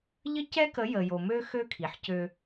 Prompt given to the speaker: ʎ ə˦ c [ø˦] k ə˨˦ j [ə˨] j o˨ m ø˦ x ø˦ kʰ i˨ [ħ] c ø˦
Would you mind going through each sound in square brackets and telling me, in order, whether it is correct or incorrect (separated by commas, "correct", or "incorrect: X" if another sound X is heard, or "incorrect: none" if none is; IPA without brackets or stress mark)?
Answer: incorrect: ɛ˦, correct, correct